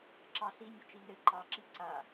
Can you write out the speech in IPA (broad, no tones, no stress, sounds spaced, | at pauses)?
ǁ ɑ ɬ i nʲ ɘ t͡ʃ i n ɘ ǃ ɑ ǁ i ǀ a